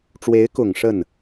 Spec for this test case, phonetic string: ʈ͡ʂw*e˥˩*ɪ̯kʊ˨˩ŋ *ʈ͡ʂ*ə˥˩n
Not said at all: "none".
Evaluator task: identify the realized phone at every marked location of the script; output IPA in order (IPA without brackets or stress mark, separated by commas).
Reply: e˧˥, ʂ